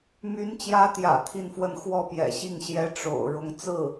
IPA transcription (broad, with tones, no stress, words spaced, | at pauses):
my˧˥nt͡ɕjä˧˥t̪jä̰˨˩ t̪ʰi˥˧nfwə˥˧n xwɔ˥˩pjɛ̰˨˩ɕi˥˩ŋ ɕjɛ˧˥ ʈ͡ʂo̰˨˩ʊ̯ ɻʊ˧˥ŋ t͡sɹ̩˥˩